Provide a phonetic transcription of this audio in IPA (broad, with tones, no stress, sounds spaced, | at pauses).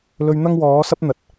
l ɵ˧ ɥ n̪ ɐ˥ ŋ w ɔː˨˥ s ɐ˥ p̚ n̪ ɐ˨˥ t̚